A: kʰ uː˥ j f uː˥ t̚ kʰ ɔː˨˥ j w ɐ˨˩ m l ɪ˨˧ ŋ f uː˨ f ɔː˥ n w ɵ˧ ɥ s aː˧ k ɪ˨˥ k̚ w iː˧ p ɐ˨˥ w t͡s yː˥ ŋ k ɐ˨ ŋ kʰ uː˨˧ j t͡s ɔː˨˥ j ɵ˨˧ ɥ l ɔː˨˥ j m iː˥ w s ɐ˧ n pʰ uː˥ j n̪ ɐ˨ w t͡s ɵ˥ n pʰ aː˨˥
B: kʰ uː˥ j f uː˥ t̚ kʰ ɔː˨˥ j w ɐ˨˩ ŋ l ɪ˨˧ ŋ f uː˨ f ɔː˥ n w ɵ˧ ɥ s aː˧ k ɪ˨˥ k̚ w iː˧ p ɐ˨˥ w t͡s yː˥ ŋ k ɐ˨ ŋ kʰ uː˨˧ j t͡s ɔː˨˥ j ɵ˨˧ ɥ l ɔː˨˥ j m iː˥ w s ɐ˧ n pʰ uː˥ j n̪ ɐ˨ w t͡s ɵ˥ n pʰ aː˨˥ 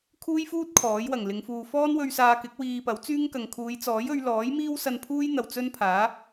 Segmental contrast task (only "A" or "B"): B